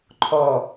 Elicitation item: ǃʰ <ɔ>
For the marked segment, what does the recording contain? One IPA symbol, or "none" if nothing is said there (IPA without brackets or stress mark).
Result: ɔ